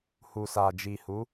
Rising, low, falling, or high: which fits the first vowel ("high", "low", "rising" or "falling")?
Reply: low